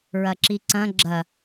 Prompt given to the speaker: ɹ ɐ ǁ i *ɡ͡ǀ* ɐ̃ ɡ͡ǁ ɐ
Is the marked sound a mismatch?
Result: yes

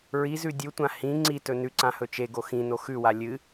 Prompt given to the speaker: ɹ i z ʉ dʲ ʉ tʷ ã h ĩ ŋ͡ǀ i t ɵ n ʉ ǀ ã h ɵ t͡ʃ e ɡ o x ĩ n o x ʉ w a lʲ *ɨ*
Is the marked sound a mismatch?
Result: no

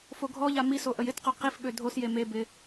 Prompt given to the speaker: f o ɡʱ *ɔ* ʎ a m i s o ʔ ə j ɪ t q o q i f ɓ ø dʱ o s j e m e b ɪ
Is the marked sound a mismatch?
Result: no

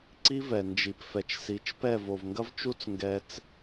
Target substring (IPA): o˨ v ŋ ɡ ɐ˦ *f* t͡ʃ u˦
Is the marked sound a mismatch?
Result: yes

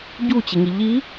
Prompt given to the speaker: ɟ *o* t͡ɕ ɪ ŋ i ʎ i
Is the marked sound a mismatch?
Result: yes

